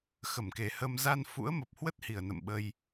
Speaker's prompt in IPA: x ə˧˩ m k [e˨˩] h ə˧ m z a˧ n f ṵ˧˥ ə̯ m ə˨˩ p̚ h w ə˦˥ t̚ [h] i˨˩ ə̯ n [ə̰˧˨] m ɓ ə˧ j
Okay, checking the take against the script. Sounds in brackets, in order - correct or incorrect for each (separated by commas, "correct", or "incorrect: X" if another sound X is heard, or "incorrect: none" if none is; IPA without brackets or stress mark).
correct, correct, correct